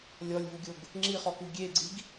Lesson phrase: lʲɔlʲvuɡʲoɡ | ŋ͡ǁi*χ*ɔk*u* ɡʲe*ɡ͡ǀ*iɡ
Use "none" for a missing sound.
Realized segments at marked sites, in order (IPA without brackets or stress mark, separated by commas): χ, u, ɡ͡ǀ